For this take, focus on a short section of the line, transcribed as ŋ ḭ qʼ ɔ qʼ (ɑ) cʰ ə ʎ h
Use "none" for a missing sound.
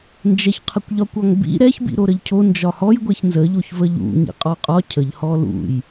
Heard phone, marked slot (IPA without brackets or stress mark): ɒ